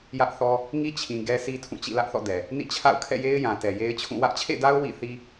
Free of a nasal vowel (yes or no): no